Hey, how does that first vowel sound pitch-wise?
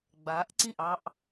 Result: rising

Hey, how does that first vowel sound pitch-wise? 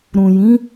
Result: low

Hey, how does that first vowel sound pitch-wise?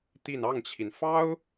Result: falling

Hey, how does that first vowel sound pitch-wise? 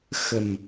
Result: low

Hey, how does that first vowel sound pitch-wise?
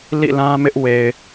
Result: falling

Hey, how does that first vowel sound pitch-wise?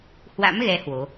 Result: rising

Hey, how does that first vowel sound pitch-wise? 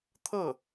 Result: falling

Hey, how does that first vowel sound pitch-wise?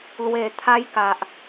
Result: low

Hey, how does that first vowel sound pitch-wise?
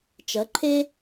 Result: rising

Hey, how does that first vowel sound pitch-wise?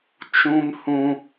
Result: high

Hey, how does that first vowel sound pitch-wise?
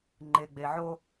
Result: low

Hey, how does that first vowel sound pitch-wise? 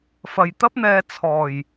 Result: low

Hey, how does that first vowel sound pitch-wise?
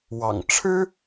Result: low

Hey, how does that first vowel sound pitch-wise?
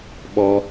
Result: high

